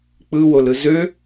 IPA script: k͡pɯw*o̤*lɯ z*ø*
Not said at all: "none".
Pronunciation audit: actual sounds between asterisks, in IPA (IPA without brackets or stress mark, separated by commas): o, ø